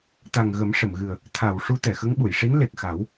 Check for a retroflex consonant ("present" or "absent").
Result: present